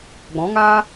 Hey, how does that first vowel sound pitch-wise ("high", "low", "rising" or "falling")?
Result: rising